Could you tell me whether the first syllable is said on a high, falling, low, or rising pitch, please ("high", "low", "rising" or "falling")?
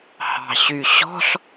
low